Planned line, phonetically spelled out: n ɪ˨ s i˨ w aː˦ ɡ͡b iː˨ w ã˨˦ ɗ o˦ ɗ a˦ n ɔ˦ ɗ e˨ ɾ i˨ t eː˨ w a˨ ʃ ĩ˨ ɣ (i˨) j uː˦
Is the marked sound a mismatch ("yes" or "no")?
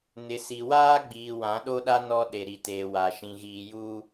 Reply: yes